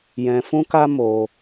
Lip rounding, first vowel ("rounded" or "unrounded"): unrounded